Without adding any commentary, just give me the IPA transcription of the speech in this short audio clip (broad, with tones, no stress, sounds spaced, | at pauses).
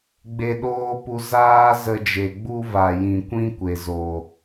ɡ͡b e˧ ɗ oː˦ p u˧ z aː˦ z ə˧ d͡ʒ e˨ ɡ͡b u˦ v a˨ j ĩ˨ kʷ ĩ˦ kʷ e˨ z o˨